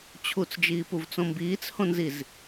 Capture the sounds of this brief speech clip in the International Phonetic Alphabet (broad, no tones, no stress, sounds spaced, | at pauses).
t͡ɕʰ u t͡s d͡ʒ iː p u v t͡s õ m b iː t͡s h õ n z i z